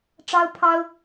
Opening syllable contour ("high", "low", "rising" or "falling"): high